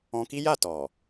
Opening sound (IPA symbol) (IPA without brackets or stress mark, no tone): ɔ̃